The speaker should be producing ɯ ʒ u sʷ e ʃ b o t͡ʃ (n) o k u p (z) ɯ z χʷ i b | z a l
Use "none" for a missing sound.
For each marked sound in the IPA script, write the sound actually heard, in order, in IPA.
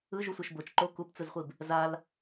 ǃ, t͡s

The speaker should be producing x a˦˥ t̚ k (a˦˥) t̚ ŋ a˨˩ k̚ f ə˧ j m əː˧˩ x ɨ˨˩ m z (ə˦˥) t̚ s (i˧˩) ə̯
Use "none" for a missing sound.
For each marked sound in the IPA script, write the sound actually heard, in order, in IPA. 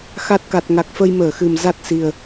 a˨˩, a˦˥, i˨˩

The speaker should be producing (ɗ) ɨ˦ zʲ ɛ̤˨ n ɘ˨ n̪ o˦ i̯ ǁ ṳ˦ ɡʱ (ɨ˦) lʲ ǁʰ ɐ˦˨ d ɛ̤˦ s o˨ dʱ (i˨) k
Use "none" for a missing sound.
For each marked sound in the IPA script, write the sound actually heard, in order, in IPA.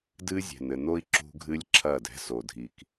d, ɨ˦, i˨

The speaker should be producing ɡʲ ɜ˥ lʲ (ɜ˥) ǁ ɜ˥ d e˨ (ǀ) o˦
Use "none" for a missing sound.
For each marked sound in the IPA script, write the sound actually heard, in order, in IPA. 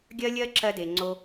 ɜ˥, ŋ͡ǀ

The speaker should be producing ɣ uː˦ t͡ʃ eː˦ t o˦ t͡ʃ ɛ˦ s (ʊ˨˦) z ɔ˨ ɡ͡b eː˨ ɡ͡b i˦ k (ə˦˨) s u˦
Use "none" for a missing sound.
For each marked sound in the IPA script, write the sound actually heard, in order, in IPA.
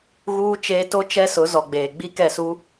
ʊ˨˦, ɛ˦˨

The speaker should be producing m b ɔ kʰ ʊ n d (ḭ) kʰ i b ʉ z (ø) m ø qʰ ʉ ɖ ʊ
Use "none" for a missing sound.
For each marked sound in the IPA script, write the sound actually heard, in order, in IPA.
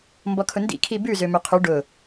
ḭ, ø

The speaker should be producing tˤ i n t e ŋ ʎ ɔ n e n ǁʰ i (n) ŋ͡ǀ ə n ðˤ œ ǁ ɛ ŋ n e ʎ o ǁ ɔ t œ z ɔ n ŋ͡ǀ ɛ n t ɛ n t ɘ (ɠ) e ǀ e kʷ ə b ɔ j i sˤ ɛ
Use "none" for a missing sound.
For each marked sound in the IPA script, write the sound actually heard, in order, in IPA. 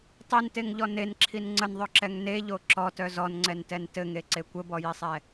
n, ŋ

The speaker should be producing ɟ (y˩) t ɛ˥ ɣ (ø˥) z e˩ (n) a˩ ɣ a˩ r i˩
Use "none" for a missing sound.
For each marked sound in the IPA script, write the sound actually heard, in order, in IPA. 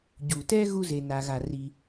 u˩, u˥, n

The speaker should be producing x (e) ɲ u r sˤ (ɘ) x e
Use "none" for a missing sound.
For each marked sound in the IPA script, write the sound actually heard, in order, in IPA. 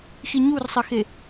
i, ɘ

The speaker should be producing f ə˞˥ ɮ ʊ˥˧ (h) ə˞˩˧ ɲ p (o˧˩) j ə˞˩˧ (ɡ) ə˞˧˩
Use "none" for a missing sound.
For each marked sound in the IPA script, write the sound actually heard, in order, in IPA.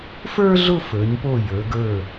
f, o˧˩, ɡ

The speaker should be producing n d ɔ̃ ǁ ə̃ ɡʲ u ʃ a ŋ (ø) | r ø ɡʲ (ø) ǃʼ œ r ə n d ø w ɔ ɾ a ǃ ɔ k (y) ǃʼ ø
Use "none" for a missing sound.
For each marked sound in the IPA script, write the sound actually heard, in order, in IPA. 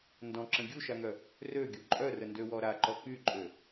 œ, u, y

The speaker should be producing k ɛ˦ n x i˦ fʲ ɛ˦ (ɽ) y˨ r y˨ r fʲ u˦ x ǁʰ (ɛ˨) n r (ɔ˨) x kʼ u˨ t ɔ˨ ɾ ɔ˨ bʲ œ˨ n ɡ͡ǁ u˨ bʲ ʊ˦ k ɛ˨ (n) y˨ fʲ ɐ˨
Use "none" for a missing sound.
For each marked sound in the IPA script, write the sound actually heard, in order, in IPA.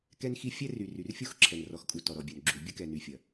r, ɛ˨, ɔ˨, n

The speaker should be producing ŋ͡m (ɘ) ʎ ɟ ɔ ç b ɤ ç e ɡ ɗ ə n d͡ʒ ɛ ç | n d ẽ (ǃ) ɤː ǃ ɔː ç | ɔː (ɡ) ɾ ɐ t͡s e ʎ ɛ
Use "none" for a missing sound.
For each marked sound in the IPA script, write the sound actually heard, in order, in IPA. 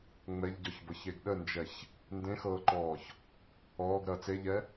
ɛ, x, ɡ

